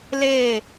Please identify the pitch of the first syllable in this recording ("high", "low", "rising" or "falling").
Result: falling